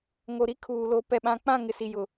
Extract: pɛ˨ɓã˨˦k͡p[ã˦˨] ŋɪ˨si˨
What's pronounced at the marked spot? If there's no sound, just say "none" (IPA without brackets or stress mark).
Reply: ã˦˨